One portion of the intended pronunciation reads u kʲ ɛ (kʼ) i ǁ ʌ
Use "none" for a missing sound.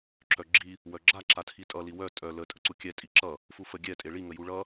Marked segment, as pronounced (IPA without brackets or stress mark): tʼ